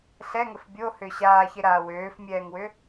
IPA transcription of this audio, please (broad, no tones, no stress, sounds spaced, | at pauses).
ɬ ɛ ŋ ə f bʲ o h ʏː ɕ aː ç e ɾ aː w øː f mʲ ɛː ŋ w ʏ